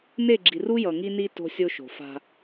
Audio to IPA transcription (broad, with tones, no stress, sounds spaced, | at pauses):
n e˦˨ ɡ͡ǁ i˨ r u˦ j ʌ˨ ŋ i˦ n i˦ t o̤˦ sʲ o˦ ʃ o̤˨ f a̤˦